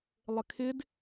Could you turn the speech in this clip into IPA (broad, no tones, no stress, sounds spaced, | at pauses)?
lˠ ɪ kʰ ɪ d